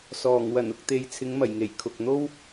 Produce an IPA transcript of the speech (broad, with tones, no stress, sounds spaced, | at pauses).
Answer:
s ɔː˨˩ ŋ w ɐ˨˩ n ʊ˨ k̚ t̪ e˨ j t͡sʰ ɪ˨˧ ŋ m ɐ˨˩ j ŋ e˨˩ j kʰ ʊ˨ k̚ n̪ o˥ w